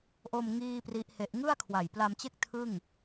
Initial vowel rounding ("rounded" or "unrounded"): rounded